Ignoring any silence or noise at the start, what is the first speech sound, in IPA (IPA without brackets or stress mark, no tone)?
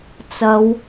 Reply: t͡s